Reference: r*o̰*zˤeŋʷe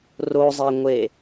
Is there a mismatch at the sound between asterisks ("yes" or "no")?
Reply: yes